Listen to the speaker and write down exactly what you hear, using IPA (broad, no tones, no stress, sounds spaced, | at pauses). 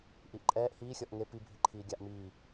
ʔ i ʔ ǃʼ ɛː ʔ h iː xʲ ɔ ʔ ŋ e p i bʱ i ǃʰ iː ɡʲ a ʔ m iː